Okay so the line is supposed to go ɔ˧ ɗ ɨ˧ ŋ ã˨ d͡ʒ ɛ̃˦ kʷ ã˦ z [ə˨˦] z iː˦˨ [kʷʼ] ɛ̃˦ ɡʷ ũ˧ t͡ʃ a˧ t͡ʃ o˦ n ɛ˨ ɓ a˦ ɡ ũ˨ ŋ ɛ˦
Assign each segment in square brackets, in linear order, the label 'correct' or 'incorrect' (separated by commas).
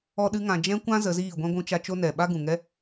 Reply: correct, incorrect